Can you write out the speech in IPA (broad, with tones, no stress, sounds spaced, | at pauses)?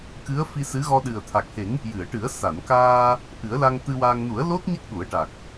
k ɨ˧˥ ə̯ f i˧ s ɨ˧˥ ɣ ɔ˧ ɗ ɨ˨˩ ə̯ t̪ʰ a˨˩ k̚ h e˨˩˦ ŋ | j ɨ˨˩˨ ə̯ ʈ ɨ˨˩˦ ə̯ s a˨˩˨ n k aː˧ | ʔ ɨ˨˩˦ ə̯ l a˧ ŋ t̪ ɨ˧ w aː˧ ŋ n u˨˩˦ ə̯ l o˦˥ t̚ ɲ ə˦˥ k̚ ɗ u˨˩˦ ə̯ ʈ a˨˩ k̚